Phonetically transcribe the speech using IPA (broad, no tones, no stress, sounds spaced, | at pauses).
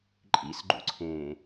ǃʼ ḭ s ɡ͡ǃ ṵ ǀʰ ẽː